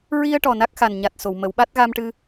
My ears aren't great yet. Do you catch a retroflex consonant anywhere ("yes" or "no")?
yes